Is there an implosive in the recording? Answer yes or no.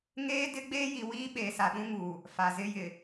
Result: yes